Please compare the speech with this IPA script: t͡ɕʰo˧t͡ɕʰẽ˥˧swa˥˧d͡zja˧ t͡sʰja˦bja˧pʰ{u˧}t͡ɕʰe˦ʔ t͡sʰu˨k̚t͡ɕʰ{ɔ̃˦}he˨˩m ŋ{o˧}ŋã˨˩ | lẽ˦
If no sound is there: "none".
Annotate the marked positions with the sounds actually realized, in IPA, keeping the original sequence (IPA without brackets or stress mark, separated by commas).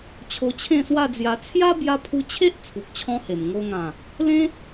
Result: u˧, ɔ̃˧, o˧